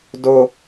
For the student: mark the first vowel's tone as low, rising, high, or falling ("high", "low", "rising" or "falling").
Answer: high